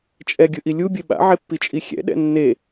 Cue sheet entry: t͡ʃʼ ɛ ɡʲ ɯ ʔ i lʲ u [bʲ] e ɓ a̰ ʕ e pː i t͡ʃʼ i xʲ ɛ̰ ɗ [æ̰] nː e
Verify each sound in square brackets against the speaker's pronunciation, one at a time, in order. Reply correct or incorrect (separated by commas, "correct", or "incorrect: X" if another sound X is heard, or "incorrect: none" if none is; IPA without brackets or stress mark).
correct, incorrect: ɛ̰